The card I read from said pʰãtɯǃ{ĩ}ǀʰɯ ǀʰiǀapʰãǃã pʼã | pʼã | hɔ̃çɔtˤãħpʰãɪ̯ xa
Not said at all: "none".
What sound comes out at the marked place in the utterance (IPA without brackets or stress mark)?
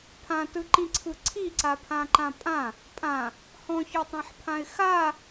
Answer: ĩ